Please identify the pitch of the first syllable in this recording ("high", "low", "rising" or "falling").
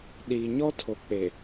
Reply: low